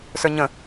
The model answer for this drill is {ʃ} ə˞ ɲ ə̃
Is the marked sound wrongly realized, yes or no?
yes